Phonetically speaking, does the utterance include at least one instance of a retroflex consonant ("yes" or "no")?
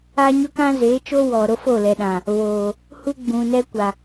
no